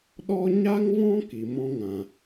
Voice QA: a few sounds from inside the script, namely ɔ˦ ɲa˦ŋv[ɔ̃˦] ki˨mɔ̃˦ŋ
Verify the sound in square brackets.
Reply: correct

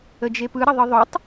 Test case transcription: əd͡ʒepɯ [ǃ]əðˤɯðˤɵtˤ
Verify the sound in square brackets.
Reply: incorrect: ɾ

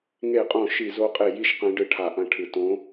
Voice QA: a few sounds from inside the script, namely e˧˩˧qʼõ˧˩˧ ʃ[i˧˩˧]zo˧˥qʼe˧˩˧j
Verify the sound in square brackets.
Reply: correct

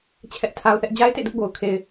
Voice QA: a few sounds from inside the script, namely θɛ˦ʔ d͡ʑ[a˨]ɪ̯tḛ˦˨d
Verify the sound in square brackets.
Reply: incorrect: a˦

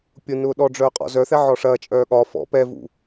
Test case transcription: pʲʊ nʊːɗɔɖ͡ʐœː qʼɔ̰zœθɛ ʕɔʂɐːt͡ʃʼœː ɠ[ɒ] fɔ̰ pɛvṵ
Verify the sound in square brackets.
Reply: correct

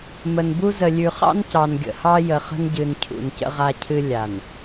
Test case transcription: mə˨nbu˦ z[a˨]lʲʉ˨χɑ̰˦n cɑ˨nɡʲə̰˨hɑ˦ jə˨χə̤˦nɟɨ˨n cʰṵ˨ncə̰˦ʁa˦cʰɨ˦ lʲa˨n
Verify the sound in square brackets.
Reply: incorrect: ə˨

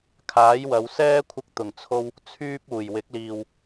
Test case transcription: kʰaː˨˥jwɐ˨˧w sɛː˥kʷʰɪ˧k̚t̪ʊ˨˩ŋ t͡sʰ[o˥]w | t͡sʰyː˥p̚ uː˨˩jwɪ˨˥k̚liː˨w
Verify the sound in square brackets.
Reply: correct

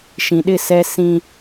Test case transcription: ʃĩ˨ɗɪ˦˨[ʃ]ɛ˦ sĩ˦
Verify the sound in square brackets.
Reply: incorrect: s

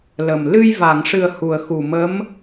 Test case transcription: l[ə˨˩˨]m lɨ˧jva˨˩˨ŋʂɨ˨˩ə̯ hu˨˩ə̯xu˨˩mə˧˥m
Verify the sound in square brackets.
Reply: incorrect: ə˨˩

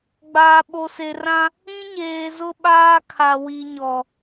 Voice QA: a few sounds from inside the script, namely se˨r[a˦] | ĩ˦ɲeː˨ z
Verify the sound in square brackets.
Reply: incorrect: ã˦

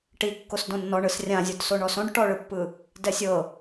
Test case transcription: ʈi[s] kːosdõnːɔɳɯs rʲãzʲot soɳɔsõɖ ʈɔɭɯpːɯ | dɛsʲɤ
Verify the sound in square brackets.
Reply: incorrect: none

